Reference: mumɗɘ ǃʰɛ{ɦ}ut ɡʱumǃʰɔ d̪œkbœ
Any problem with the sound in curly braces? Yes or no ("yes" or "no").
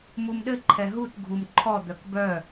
no